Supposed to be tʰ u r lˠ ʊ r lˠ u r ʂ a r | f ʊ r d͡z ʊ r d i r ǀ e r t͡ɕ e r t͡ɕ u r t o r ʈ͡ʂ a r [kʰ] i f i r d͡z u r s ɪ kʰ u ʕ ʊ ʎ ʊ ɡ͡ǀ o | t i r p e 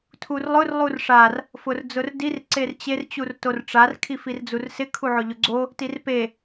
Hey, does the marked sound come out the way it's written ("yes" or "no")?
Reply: yes